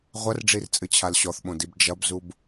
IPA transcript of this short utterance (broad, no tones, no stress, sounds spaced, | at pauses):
ʁʷ ɐ r ɖ͡ʐ i r t͡sʼ ɨ t͡ɕʰ a l ɕ ɔ θ ɓ õ d i b d͡ʒ ɐ b z u b